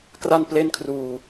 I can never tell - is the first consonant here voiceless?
yes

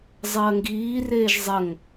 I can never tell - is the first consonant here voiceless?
no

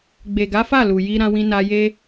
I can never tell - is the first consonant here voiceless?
no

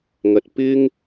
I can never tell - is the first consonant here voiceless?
no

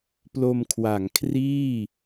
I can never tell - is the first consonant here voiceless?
yes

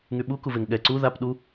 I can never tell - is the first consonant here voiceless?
no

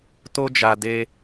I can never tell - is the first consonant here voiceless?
yes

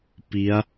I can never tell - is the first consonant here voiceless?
yes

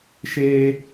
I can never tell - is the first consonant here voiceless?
yes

